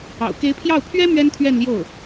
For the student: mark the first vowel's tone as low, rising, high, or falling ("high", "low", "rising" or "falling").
low